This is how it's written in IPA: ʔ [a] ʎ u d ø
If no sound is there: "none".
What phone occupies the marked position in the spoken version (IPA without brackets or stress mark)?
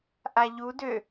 a